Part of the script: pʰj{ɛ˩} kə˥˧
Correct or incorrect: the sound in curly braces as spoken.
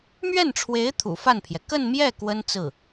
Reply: correct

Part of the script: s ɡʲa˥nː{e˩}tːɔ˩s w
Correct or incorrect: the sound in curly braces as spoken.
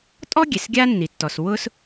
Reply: incorrect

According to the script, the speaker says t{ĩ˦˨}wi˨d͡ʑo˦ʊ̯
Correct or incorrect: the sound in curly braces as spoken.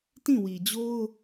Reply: correct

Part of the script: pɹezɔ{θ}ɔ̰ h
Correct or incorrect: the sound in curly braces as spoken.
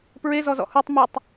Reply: incorrect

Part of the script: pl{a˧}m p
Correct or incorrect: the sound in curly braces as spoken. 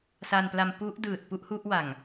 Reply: correct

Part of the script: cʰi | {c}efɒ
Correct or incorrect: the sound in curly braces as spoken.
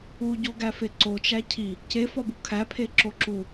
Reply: correct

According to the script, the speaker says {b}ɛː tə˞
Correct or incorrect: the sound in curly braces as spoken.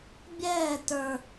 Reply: incorrect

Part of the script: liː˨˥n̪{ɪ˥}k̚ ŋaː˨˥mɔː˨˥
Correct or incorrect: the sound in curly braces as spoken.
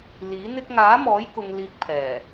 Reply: correct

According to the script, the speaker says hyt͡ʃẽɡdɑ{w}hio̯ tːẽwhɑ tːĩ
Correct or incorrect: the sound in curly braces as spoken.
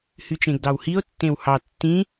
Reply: correct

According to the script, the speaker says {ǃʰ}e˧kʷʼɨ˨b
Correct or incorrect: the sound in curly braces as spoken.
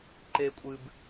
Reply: incorrect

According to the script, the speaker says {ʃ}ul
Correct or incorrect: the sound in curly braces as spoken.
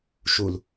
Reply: correct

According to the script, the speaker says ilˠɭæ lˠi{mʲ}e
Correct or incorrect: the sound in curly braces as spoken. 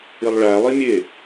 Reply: correct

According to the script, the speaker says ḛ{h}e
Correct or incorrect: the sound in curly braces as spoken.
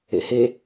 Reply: correct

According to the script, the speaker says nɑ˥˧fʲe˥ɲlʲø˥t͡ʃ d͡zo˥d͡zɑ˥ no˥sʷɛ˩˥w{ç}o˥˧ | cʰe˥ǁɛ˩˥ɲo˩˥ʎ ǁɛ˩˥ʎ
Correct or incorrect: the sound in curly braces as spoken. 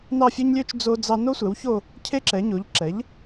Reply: correct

